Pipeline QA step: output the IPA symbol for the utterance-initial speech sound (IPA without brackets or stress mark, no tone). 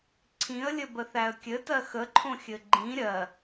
ǀʰ